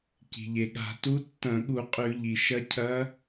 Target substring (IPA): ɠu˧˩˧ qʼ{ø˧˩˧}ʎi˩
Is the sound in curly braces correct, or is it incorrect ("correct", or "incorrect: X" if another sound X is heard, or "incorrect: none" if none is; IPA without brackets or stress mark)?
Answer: incorrect: ʉ˧˩˧